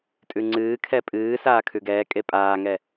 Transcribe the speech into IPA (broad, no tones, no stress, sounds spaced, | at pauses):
tʼ ʉ ŋ͡ǀ ɨː kʰ ɛ pʼ ɨː s aː kʰ ʉ ɡ ɛː kʼ e pʼ aː ŋ ɛ